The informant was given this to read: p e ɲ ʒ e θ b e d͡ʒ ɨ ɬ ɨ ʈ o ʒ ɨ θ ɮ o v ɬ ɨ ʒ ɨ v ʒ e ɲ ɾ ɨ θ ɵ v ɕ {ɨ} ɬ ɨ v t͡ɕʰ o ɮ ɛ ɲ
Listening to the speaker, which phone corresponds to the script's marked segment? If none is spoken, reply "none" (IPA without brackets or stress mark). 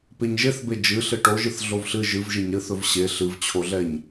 e